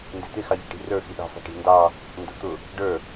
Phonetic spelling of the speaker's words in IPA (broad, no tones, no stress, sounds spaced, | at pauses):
n d ɪ t̪ ɪ x ɑ ʎ i̤ ʈ i̤ r ə˞ x i ɗ ɑ̤ f ɑ̤ ʈ i̤ n d ɑ | n d ʊ t̪ ʊ | ɖ ə˞